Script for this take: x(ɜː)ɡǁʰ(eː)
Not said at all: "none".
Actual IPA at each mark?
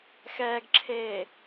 ɛː, eː

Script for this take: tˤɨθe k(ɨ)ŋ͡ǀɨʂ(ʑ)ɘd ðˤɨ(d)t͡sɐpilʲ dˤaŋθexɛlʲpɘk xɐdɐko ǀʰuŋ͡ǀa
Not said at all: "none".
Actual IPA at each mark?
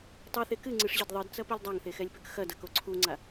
ɨ, ʑ, d

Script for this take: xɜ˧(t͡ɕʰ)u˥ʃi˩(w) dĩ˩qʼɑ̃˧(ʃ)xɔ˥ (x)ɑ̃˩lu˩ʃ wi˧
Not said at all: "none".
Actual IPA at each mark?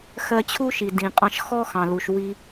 t͡ɕʰ, none, ʃ, x

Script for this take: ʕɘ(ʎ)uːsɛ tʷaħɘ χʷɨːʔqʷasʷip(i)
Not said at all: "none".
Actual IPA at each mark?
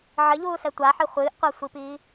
ʎ, iː

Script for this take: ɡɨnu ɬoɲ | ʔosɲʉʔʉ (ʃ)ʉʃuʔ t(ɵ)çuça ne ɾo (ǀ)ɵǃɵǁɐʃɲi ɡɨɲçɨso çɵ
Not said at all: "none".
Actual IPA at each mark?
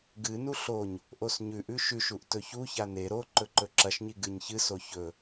ʃ, ɵ, ǃ

